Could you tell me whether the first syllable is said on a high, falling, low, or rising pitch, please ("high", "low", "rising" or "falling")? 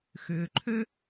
low